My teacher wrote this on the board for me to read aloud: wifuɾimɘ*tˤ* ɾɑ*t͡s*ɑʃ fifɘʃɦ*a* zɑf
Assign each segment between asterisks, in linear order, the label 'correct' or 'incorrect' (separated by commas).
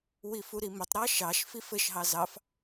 correct, incorrect, incorrect